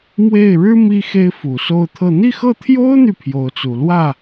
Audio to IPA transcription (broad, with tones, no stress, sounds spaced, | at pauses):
m w e˥˩ ɪ̯ ɻ ɻ̩˥ m i˥ x e˥ ɪ̯ f u˨˩ s o˥˧ ʊ̯ t̪ʰ ɤ˥˧ n̪ i˥˧ x ɤ˥˩ t̪ʰ j o˥ ʊ̯ n̪ y˨ pʰ j o˧˥ ʊ̯ t͡s u˨˩ l w ä˥˩